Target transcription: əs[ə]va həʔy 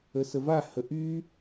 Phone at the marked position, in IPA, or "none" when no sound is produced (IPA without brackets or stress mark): ə